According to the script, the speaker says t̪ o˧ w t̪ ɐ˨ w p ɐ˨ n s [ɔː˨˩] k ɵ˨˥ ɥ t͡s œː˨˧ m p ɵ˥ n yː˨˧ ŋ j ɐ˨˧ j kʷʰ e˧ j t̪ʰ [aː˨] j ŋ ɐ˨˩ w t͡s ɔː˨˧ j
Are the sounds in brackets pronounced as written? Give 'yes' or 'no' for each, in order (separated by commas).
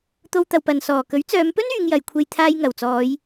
yes, no